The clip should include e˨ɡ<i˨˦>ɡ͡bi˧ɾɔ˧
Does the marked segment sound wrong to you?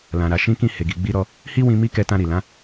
yes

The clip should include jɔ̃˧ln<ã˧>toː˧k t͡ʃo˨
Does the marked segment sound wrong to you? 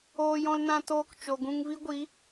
no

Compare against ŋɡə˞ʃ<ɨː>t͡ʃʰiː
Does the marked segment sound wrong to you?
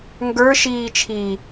yes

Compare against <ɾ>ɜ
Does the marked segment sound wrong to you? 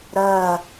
no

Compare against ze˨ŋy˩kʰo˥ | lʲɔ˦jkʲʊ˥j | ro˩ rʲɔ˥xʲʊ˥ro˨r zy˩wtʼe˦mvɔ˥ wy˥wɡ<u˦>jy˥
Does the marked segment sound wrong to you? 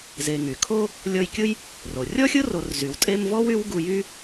no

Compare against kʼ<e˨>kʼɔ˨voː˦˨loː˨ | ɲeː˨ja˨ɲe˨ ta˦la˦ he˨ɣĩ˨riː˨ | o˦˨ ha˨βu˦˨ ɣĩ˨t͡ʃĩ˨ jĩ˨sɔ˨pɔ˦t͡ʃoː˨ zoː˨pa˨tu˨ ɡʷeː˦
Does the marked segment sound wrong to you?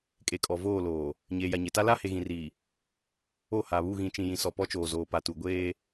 no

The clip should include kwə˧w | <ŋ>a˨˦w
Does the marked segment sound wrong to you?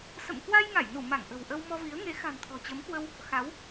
yes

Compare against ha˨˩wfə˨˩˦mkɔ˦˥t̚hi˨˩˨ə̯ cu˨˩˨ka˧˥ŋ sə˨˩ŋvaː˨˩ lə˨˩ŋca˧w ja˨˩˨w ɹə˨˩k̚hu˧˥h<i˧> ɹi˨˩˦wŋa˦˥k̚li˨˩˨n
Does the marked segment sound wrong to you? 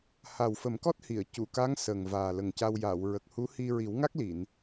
no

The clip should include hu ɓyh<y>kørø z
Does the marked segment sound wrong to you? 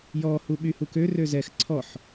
yes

